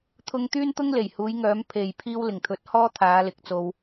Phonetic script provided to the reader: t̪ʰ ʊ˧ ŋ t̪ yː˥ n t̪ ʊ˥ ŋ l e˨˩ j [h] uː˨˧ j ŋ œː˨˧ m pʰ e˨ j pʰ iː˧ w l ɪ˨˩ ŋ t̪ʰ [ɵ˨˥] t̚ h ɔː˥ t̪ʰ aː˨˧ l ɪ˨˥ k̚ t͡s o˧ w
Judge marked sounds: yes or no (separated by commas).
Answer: yes, yes